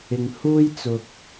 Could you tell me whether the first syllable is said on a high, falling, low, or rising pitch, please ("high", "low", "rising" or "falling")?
low